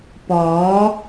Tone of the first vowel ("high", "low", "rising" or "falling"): rising